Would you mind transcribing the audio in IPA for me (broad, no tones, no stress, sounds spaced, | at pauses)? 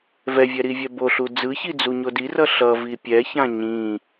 v ɛ vʲ ɛ ɾ i vʲ ɛ b o ɬ u d͡z ɯ ç i d͡z u ɲ o d i r ʌ ɬ ʌ v i pʲ ɛ ç ã ɲ ĩ